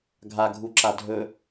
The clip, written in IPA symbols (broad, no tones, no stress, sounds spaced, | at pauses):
ɡʱ a ɡʱ u ǁ a dʱ ɵ